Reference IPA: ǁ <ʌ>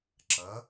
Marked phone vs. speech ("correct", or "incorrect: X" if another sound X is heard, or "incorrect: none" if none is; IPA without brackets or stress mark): correct